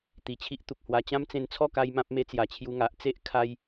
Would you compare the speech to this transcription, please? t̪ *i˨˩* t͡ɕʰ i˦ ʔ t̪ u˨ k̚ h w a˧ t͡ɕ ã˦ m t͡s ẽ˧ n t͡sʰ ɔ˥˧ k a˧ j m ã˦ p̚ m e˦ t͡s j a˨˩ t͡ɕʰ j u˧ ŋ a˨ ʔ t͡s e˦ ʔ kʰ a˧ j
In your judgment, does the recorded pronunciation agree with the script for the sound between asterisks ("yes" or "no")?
yes